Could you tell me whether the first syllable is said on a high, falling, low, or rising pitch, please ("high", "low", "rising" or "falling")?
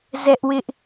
high